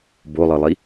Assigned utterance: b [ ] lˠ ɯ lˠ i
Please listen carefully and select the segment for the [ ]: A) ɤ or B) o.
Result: B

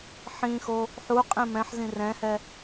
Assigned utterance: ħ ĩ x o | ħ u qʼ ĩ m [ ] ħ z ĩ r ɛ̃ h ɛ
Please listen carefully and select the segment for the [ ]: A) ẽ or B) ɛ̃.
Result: B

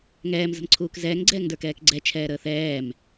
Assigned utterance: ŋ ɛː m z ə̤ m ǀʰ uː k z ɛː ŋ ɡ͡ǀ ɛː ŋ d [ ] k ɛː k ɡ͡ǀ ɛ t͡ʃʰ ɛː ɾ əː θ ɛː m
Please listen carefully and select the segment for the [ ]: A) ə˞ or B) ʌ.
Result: A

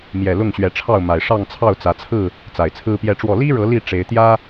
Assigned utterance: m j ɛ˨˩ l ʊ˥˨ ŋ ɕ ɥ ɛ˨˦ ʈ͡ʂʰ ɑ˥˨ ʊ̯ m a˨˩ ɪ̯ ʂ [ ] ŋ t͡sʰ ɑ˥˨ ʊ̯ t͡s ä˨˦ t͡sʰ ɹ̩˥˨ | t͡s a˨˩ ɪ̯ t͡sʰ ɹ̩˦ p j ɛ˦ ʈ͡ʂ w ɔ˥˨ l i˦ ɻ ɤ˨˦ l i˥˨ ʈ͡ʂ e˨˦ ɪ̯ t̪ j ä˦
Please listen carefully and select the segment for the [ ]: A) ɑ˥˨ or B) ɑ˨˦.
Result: A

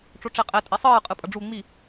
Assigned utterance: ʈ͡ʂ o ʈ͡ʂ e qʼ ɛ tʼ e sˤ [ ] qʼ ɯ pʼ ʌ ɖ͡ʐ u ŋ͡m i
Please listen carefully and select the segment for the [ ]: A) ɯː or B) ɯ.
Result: A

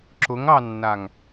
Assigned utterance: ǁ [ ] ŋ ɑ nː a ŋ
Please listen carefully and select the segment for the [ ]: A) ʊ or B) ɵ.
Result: A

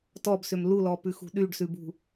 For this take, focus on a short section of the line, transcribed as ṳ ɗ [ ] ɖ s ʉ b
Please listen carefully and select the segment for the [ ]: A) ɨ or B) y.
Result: B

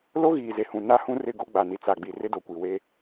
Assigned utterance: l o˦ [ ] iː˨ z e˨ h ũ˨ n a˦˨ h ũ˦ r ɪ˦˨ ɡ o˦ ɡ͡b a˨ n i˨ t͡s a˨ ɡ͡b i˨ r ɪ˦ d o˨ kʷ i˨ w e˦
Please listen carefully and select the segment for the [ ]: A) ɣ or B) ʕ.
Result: A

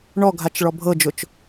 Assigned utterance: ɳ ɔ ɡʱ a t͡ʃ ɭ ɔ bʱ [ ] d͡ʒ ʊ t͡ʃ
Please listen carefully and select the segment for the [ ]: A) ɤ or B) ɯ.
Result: A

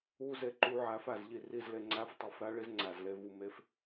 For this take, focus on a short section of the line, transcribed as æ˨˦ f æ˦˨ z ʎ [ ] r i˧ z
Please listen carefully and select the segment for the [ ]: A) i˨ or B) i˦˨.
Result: B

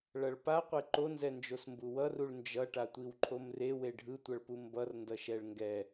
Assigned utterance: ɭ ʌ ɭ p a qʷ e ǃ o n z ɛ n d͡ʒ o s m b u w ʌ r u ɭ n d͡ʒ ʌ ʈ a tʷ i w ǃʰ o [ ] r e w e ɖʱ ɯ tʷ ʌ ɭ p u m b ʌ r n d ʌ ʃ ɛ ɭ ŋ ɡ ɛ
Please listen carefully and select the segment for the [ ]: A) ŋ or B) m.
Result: B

